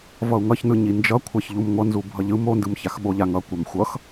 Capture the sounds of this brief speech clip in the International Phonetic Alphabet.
v ʌ u̯ ŋ ʌ ç n ɯ ɲ i n d͡ʒ ʌ kʷʰ a ç ʎ u m ŋʷ ʌ n z u bʱ ʌ ʎ ɯ m o n d ɯ m ç a x ɓ o ʎ a ŋ ʌ kʷ a m xʷ ʌ x

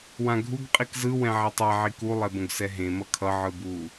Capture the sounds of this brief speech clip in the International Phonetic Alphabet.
w ã ɡʱ u ɡ qʼ i k z ɯ w ɛ̃ ʕ ɛ tˤ a ʕ i k u lˠ ɛ b õ ɡ s ɛ ɦ ẽ m ʌ kʰ ʌ ʕ ɯ b u

